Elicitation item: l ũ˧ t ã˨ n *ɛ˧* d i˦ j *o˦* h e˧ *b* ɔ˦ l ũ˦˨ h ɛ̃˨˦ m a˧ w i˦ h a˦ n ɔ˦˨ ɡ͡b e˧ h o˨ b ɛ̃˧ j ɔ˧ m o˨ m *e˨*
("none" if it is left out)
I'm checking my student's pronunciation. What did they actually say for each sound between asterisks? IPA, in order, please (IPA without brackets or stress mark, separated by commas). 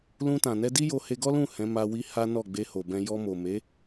ɛ˧, o˧, ɡ, e˨˦